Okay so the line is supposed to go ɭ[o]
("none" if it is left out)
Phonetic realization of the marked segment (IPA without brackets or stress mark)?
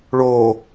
oː